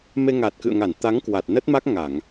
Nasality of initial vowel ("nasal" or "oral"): oral